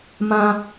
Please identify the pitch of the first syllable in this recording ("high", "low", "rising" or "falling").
high